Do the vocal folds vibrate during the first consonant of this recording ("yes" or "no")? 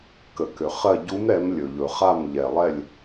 no